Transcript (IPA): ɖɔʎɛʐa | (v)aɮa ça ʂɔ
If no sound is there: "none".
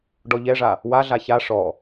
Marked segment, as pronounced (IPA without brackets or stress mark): w